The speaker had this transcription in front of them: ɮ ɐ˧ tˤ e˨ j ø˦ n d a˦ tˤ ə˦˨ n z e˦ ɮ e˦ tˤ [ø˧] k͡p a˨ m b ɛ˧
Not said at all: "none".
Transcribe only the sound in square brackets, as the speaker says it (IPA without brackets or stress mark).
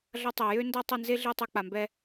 ø˧